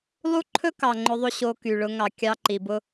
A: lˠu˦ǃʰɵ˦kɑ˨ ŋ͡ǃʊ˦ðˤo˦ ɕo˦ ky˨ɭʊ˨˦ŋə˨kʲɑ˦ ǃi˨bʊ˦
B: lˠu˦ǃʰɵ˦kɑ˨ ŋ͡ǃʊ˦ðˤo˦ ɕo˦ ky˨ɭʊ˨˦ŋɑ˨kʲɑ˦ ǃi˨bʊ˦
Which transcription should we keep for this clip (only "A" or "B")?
B